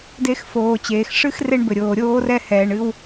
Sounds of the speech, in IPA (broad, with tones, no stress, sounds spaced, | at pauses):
d e˧ x f oː˨ t͡ɕ eː˨ x ʂ ɨ˦ x r e˧ ɳ b ɘ˨ ɾʲ oː˨ ɾʲ oː˦ r ɛ˦ h ɛː˧ ɳ ɨ˦ w